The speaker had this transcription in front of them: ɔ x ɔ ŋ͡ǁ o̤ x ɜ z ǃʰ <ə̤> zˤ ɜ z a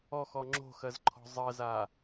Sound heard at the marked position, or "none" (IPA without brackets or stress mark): ɔ̤